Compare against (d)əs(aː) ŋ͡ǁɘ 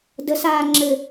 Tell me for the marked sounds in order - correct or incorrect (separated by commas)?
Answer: correct, correct